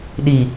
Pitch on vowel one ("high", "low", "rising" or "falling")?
low